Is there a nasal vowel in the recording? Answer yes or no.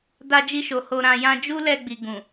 yes